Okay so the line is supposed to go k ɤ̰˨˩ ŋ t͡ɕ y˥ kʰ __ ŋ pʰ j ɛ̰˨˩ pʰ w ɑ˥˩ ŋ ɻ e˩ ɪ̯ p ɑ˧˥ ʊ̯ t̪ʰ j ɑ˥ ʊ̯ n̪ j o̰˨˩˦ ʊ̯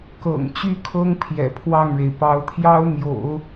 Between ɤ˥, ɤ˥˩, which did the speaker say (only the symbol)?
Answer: ɤ˥